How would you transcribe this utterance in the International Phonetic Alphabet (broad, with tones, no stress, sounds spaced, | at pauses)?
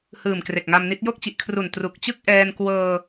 h ɯː˨˩ m k r e˨˩ k̚ ŋ a˧ m n i˦˥ t̚ j o˥˩ k̚ t͡ɕ i˨˩ ʔ kʰ r u˨˩ n t r u˨˩ k̚ t͡ɕ ɯ˥˩ k̚ ʔ ɛː˧ n k w ɤː˧